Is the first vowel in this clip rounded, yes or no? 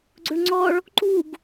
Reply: yes